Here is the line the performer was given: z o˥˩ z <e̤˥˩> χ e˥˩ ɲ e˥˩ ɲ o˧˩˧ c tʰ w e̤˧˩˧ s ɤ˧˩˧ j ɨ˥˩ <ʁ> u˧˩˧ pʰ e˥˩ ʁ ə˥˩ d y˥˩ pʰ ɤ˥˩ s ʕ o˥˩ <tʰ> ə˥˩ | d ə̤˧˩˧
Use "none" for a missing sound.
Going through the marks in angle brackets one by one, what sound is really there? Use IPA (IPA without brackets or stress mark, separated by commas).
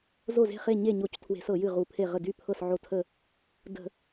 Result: e̤˥˩, ʁ, tʰ